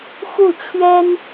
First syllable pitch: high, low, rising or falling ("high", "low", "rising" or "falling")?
falling